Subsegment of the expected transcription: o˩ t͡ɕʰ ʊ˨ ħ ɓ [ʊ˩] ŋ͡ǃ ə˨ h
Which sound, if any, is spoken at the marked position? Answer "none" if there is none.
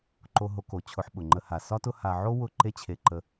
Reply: ʊ˩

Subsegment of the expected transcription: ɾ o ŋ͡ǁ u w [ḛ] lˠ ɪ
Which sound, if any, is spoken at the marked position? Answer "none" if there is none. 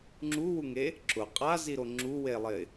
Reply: e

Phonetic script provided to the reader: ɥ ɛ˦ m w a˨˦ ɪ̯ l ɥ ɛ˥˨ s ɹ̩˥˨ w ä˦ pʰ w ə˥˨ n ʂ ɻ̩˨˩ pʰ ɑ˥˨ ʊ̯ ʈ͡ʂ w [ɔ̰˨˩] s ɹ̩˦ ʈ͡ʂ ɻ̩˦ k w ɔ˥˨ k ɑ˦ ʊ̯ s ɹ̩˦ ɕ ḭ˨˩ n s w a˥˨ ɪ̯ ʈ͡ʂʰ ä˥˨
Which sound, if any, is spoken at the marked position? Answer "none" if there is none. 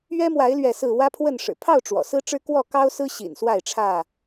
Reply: ɔ̰˨˩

